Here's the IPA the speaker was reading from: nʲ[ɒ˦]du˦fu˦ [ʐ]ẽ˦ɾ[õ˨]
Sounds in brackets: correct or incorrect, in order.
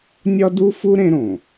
correct, incorrect: ɾ, correct

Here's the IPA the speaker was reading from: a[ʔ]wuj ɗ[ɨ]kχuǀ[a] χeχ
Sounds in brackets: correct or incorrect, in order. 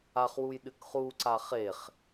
incorrect: χ, correct, correct

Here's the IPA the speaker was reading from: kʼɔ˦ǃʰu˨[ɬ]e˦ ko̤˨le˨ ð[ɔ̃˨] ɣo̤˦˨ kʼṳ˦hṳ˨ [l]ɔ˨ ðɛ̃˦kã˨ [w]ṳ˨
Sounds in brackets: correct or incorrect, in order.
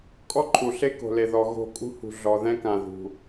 correct, incorrect: ɔ˨, incorrect: ɮ, incorrect: ð

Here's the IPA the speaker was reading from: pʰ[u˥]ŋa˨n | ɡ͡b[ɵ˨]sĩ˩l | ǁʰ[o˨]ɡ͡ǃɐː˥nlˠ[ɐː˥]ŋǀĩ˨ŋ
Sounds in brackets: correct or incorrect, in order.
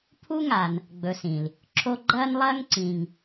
correct, correct, incorrect: o˦, correct

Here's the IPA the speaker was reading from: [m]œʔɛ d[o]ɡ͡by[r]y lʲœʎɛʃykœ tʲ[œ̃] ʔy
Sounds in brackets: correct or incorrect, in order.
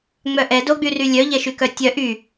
incorrect: ŋ͡m, correct, correct, incorrect: œ

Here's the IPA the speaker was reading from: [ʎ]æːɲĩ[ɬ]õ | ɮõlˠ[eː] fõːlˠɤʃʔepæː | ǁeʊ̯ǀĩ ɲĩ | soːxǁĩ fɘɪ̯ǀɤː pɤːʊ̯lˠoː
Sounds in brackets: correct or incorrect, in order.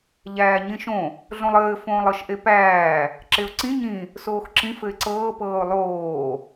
correct, incorrect: ʃ, incorrect: ɘː

